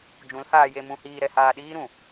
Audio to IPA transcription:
d͡ʒ ũ˨˦ l h aː˧ j e˧ m ũ˧ h iː˧ ɾ ɛ˧ h aː˧ ɗ iː˦ ɾ ũ˨

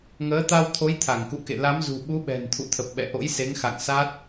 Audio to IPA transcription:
ŋ əː˨˦ t̪ a˧ w t̪ʰ o˨˦ j t̪ʰ a˧˩ ŋ k ṵ˧˨ k ḛ˧˨ l a˨˦ m z ṳ˨˩ ɓ u˨˦ ɓ ɛ̤˨˩ n t̪ʰ ṵ˧˨ t̪ʰ ə˨˩ p̚ ɓ ɛ̰˧˨ ʔ o̰˧˥ j s e˨˦ ŋ x a̰˧˨ ŋ s a˦˥ t̚

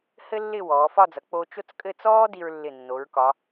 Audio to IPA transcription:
h ɘ˥ lː ɪ˥˧ w ɔː˩˧ f ɒ˥˧ d͡z ʌ˩˧ k͡p o˧ t͡ʃ o˥˧ t͡s kʼ ɘ˥˧ t͡s ɔː˥ d i˧ ɹ lː ɪ˧˩ nː o˩˧ ɹ k ɒ˩˧

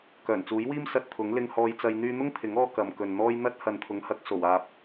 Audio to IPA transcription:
k œː˨˩ n t͡s uː˨˥ j w iː˥ m s ɐ˧ t̚ t̪ʰ ʊ˨˥ ŋ l ɪ˧ ŋ h ɔː˧ j t͡s ɐ˧ j n̪ yː˧ n̪ ʊ˥ ŋ t̪ʰ ɪ˨˥ ŋ ɔː˧ k ɐ˨ m k ɵ˨ n n̪ ɔː˥ j n̪ ɐ˥ t̚ h ɐ˨ n t̪ʰ ʊ˨˥ ŋ h ɐ˨˥ k̚ s o˨˩ w aː˨ p̚

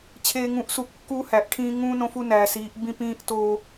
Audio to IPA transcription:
t͡ɕʰ eː˨ ŋ ũ˨˦ ʔ s u˨ kː uː˦ h æ˨ ʔ ʈʰ ĩː˦ ŋ ũ˦ n õ˦ f u˦ n æː˨ s iː˨˦ ʔ b ĩ˦ p ĩː˦ ʔ t oː˦

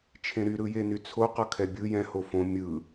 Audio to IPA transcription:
t͡ʃʰ ẽ ɾ y ɾ ɯ j e n y t͡sʰ o q ʌ kʰ ɛ bʲ ɯ j ɛ̃ h o f õ mʲ ɯ

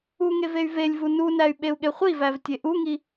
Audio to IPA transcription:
u ŋ e v e y̯ v e lʲ v u n u n æ y̯ ɓ e u̯ ɠ e χʷ i v æ v tʲ e ʔ u ŋ i

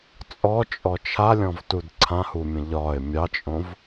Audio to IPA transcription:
t͡sʼ ɔ t͡ʃʼ ɔ t͡ʃʰ a lʲ ɔ̃ v t u d ǀʰ ã h u mʲ ə̃ ʎ ɒ ɪ̯ mʲ ɑ t͡ʃʼ õ v

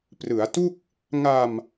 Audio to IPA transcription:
p r ɯ˩˦ a̯ t u˥˩ k̚ | ŋ a˧ m

